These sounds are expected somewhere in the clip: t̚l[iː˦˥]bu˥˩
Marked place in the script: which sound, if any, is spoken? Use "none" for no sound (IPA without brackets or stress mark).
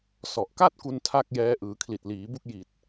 iː˩˦